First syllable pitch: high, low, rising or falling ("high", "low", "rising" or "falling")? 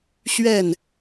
falling